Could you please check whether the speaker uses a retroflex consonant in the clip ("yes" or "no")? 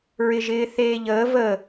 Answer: no